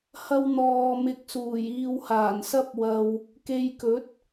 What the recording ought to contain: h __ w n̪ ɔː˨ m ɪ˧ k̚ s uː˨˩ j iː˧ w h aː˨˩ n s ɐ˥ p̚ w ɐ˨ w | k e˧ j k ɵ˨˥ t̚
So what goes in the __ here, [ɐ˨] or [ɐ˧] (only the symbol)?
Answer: ɐ˧